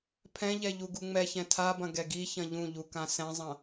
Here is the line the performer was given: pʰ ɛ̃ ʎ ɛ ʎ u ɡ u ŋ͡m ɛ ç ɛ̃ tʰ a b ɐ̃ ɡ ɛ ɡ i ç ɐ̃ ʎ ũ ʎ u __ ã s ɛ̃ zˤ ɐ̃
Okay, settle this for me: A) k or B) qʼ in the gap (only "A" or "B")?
A